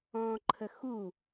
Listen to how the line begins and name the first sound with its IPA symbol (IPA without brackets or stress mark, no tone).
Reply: ɔ̃ː